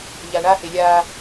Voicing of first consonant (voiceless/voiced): voiced